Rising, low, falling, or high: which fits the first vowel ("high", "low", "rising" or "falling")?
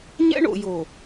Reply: high